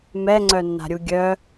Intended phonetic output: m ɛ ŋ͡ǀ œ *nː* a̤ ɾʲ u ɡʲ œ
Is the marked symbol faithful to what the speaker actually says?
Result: yes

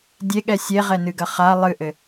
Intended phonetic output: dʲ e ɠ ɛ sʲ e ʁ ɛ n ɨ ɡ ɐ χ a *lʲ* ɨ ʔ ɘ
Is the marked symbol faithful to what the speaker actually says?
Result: no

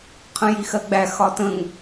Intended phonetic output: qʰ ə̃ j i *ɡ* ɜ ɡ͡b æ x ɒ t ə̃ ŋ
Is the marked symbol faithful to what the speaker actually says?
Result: no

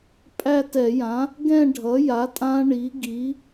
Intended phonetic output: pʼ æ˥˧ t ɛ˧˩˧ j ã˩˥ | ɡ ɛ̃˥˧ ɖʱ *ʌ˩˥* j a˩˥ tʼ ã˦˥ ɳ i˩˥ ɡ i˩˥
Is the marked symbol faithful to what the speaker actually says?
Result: yes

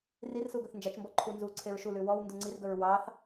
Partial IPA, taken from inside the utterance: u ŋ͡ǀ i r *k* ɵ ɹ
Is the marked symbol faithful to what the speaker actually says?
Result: no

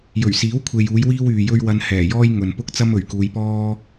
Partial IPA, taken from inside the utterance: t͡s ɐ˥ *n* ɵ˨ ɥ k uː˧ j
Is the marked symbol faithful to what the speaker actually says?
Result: no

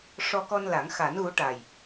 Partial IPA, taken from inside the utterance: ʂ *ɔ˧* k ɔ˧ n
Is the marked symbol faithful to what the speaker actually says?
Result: yes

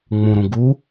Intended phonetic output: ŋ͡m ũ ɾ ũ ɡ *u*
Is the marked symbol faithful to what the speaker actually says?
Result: yes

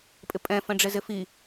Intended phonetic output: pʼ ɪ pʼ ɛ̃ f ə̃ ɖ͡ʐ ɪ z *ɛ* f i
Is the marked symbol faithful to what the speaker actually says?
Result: no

